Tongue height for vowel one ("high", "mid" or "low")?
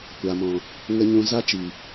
low